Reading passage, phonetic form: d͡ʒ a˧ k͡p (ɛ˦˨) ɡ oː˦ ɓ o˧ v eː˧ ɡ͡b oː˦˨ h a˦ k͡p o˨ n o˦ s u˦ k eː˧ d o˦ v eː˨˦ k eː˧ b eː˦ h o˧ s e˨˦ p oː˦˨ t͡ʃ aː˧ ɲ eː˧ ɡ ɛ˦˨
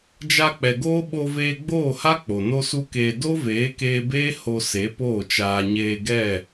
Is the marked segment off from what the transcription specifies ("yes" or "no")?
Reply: yes